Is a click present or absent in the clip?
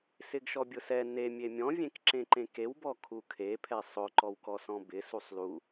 present